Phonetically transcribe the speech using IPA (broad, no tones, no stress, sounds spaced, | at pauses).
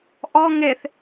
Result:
ʔ ɔ ŋ e θ